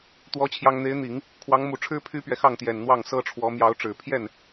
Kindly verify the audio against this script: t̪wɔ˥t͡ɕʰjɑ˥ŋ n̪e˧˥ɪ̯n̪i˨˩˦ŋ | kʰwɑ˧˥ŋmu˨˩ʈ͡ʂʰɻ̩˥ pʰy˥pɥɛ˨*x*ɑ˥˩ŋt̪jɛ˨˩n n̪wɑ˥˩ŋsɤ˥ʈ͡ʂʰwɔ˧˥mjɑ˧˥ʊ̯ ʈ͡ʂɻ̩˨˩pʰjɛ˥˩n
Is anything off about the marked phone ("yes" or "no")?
no